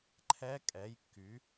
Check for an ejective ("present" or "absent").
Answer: present